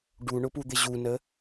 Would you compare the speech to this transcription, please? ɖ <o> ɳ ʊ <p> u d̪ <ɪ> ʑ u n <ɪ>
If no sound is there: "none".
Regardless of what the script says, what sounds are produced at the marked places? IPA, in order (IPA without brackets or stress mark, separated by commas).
u, p, ɪ, ə